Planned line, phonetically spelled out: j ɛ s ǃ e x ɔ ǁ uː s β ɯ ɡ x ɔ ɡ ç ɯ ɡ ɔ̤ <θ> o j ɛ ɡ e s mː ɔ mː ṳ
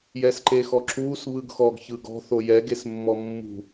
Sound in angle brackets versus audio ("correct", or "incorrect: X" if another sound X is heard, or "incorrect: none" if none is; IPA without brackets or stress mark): correct